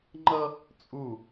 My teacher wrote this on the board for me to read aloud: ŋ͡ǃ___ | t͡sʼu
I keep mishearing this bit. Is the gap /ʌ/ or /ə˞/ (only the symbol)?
ʌ